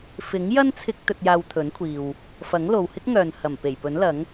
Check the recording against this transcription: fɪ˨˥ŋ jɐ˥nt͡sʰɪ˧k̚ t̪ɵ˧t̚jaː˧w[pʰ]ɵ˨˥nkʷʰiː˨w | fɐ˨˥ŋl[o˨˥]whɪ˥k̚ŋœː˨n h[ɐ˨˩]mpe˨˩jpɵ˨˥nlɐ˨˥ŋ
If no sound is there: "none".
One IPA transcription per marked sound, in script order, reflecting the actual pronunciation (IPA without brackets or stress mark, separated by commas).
t̪ʰ, o˨, ɐ˨˩